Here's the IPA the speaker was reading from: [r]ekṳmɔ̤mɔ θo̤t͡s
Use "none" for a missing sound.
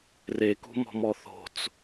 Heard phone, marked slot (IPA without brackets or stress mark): r